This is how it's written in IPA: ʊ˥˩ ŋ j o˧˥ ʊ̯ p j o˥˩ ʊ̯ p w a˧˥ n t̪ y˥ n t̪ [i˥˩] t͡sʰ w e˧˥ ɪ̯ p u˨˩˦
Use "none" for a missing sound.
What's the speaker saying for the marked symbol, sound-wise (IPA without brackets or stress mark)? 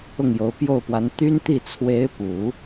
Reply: i˥˩